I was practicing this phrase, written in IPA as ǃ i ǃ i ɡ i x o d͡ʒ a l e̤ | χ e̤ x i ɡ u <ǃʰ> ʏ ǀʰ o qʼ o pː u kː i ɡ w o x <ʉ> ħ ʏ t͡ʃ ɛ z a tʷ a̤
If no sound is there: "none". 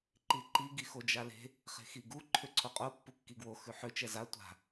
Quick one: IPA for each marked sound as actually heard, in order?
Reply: ǃʰ, ʉ

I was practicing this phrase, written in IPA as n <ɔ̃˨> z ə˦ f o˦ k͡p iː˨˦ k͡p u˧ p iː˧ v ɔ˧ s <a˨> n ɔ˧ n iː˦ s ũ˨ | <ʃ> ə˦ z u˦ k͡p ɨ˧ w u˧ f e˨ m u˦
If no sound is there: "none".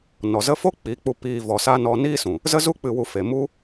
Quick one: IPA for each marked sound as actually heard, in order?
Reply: ɔ˨, a˦, z

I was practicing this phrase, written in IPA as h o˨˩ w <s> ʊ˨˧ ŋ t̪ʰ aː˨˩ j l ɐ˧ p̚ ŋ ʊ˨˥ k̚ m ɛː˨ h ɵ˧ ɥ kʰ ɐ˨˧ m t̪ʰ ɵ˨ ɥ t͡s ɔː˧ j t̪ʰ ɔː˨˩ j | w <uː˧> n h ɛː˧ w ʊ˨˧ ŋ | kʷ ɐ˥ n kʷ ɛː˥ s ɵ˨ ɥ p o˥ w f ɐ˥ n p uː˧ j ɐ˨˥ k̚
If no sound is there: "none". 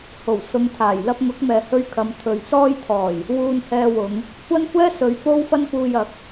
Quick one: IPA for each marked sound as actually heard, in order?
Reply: s, uː˧

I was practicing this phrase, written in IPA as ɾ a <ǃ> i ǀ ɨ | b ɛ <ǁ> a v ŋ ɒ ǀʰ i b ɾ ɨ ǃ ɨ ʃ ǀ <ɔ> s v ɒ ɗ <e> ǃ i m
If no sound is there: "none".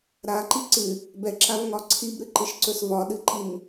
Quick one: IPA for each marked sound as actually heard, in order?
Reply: ǃ, ǁ, ɵ, ɨ

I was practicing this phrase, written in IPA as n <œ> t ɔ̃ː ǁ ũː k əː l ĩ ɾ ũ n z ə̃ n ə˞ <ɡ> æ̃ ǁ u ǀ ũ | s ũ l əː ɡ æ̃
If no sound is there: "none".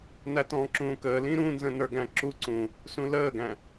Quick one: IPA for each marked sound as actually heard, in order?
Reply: æ, ɡ

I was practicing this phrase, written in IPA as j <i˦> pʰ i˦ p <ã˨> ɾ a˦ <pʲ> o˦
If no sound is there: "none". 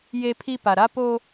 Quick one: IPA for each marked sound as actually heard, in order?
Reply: e˦, a˨, p

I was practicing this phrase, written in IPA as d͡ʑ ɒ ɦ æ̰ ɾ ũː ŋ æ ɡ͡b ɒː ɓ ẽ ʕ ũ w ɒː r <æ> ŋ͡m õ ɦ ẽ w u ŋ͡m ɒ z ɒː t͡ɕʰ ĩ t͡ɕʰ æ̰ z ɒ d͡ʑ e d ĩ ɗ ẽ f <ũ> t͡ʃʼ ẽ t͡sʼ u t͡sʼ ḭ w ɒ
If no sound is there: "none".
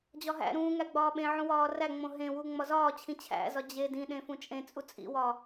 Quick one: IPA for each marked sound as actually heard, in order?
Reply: æ, ũ

